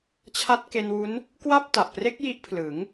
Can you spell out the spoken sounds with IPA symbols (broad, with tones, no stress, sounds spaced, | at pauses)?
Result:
t͡ɕʰ a˦˥ t̚ k e˧ n w u˦˥ n | k w a˥˩ p̚ t a˨˩ ʔ p r e˦˥ k̚ j i˦˥ ʔ pʰ l ɯ˩˦ ŋ